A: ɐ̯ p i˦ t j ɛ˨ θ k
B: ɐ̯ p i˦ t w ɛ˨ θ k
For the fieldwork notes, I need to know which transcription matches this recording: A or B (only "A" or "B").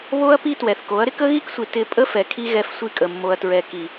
B